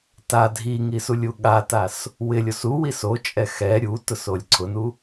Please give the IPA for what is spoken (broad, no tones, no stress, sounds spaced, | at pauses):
t a dʱ i ŋ i s u lʲ u ɠ a t a s | w ɪ lʲ o s u w i s o t͡ʃʼ ɛ x ɛ ɾʲ u t ʊ s o lʲ ǀʰ ʊ n u